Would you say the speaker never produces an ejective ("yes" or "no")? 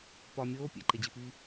yes